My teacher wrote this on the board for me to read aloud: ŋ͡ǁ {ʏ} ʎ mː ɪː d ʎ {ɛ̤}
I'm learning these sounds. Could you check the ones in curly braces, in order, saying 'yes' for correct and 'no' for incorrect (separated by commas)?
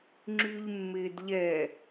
no, no